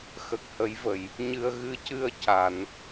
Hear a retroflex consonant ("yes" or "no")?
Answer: no